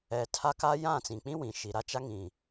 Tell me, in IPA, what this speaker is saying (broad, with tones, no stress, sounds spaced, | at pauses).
ɛ˨ tʰ a˦ k a˦ j ã˦˨ t͡s ĩ˨ k͡p ĩ˦ w ĩ˨ ʃ i˨ ɾ a˦ t͡ʃ a˦ ŋ ĩ˨